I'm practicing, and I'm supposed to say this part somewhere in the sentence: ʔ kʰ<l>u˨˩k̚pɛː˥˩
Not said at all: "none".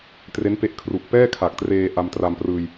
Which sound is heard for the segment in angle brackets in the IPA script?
r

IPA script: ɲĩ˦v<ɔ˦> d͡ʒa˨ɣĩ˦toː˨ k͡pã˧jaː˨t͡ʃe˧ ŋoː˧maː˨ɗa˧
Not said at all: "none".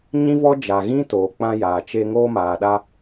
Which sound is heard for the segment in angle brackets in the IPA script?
ɔ˦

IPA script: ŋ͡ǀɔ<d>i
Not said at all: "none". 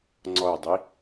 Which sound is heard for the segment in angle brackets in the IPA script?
dˤ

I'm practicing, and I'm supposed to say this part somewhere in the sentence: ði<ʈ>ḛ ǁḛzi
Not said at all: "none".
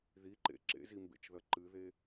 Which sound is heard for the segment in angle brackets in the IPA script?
ǃ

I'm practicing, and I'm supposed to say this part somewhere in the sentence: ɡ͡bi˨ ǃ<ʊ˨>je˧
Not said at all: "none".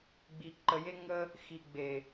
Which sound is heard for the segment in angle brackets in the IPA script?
ə˨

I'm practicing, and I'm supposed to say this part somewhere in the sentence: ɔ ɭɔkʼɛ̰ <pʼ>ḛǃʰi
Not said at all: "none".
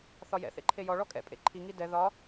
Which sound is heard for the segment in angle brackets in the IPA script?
pʼ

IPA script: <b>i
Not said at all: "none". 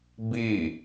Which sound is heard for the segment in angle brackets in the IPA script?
b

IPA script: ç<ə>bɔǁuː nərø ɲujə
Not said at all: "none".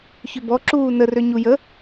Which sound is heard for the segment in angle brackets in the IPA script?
ʏ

